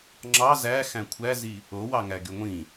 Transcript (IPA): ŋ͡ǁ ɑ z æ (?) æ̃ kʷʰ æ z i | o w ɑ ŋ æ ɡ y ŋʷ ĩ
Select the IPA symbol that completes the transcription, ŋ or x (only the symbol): x